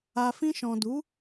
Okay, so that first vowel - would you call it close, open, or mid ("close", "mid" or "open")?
open